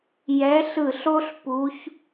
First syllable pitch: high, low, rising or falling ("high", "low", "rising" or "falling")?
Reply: rising